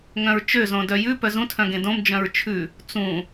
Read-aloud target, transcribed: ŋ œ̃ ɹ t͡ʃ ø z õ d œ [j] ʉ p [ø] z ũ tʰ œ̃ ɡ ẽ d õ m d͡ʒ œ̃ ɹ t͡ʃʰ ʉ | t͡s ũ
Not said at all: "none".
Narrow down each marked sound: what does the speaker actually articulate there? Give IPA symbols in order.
j, œ

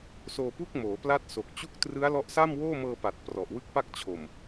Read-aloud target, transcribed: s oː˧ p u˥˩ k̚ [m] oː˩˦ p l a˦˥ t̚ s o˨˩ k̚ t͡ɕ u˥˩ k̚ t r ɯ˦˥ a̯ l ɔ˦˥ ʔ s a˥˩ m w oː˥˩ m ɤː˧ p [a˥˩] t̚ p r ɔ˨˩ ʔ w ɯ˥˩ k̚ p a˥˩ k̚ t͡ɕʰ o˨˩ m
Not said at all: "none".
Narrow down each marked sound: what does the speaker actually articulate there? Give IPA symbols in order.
m, a˨˩

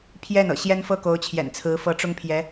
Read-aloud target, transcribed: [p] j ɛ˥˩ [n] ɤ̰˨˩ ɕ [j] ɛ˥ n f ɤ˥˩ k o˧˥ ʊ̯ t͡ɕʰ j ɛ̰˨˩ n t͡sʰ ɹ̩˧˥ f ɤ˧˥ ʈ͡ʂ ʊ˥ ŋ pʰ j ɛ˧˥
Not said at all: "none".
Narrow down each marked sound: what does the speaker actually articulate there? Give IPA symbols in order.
pʰ, n, j

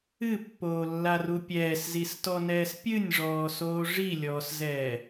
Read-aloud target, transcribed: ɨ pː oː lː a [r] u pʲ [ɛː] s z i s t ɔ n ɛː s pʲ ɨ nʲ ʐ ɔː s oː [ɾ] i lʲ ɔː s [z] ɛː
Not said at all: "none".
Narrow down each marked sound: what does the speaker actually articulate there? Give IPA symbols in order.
r, ɛː, ʐ, z

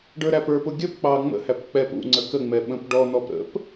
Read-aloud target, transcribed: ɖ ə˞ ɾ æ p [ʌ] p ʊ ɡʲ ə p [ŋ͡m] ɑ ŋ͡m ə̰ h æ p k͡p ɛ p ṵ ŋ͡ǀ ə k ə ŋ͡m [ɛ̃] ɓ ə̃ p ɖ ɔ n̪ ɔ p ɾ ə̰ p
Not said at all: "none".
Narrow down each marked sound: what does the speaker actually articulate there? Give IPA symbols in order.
ə˞, k͡p, ɛ

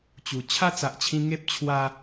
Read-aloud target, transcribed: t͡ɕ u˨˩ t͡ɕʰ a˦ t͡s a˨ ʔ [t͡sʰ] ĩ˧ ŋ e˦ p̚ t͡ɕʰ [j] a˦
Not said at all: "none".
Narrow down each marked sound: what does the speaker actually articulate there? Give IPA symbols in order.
t͡ɕʰ, w

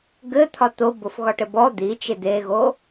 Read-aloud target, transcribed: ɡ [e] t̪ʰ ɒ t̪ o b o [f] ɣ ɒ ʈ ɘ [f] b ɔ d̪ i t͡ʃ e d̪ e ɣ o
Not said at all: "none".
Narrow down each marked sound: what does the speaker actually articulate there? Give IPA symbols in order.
ɘ, f, none

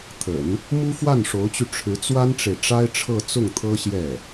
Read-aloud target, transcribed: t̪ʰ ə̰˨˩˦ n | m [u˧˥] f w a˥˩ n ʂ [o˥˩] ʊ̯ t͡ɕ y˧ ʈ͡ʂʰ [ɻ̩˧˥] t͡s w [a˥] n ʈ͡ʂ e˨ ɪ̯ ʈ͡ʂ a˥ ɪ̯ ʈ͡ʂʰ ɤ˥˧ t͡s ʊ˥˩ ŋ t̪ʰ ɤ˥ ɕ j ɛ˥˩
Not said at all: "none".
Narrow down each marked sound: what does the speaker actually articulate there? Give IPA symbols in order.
u˥, o˧˥, ɻ̩˧˥, a˥

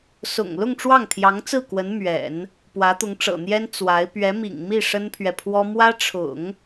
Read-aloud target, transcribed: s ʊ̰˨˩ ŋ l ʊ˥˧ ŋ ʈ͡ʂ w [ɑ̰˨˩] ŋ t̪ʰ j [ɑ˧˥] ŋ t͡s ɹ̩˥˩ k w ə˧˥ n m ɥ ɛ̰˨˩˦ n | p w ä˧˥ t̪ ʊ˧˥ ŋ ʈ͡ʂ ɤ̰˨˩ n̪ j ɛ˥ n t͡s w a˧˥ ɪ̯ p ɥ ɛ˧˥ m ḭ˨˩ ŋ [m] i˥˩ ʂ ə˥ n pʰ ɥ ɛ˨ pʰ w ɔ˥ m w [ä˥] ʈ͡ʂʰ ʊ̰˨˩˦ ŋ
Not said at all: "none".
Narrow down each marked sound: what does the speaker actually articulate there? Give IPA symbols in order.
ɑ˥˩, ɑ˧˥, m, ä˥

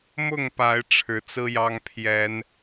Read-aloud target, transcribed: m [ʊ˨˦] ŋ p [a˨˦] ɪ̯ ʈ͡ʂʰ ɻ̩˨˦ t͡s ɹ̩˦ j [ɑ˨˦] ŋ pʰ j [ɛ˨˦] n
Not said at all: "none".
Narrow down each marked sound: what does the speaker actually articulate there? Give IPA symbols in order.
ʊ˥˨, a˨˦, ɑ˦, ɛ˨˦

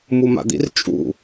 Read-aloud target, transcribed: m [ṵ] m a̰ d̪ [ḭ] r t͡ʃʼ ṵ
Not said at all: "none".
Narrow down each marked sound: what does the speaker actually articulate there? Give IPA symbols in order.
u, ḭ

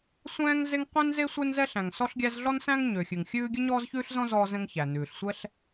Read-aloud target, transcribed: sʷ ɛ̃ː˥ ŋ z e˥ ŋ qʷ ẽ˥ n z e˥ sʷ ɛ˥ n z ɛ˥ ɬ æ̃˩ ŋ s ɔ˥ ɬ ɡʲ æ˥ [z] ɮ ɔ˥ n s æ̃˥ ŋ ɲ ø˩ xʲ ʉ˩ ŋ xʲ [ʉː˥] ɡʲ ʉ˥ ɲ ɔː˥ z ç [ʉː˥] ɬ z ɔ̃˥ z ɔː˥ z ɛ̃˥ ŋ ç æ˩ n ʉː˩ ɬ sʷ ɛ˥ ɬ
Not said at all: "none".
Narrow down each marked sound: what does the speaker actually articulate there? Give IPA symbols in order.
z, ʉː˥, ʉː˥

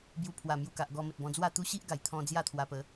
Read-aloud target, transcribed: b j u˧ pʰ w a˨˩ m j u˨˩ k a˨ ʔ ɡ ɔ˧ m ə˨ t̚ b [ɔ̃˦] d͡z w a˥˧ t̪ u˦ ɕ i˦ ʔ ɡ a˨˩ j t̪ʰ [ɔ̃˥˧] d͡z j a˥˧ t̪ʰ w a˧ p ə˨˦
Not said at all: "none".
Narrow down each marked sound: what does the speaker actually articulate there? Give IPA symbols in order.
ɔ̃˧, ɔ̃˧

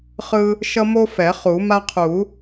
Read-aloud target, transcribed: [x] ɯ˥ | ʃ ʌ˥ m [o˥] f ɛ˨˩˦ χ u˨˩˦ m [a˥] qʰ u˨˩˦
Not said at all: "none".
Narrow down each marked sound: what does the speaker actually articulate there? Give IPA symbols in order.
χ, o˥, a˥

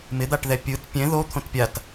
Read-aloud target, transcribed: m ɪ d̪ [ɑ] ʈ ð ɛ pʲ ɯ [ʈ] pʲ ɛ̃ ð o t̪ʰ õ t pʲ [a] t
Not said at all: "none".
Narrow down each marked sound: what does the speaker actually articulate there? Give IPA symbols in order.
a, t, a

